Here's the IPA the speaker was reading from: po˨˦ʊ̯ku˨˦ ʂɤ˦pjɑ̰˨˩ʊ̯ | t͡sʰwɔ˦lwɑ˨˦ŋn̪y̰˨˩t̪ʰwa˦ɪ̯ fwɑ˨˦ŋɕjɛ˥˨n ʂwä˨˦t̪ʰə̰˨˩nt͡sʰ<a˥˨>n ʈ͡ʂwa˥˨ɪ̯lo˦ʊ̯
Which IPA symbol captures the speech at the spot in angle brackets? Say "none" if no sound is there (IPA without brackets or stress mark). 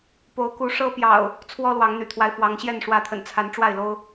a˨˦